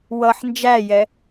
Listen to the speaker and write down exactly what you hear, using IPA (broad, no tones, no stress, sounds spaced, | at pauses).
w ʌ ħ n d͡ʒ æ j ɛ